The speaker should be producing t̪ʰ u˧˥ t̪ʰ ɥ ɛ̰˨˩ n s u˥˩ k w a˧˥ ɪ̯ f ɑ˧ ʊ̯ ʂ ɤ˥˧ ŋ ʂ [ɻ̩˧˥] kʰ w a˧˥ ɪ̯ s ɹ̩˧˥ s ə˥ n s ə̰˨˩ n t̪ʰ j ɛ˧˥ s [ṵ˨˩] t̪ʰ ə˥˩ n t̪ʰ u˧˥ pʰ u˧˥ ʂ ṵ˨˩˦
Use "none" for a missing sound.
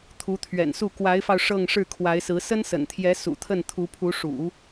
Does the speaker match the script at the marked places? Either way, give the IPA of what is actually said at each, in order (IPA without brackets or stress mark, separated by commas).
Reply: ɻ̩˥˩, ṵ˨˩